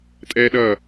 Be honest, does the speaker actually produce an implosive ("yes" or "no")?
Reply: yes